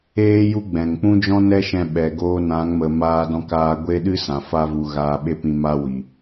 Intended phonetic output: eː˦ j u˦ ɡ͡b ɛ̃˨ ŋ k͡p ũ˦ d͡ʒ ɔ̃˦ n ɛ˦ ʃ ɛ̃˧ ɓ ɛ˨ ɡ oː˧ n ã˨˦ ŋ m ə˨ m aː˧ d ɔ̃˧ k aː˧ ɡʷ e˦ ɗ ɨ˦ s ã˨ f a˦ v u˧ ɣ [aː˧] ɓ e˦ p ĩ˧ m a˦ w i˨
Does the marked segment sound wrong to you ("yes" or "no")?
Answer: no